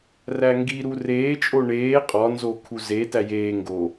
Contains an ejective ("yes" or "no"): yes